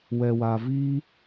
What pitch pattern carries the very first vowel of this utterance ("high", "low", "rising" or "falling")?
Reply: low